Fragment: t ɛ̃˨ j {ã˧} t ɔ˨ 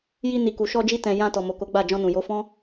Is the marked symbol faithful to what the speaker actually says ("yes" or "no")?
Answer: yes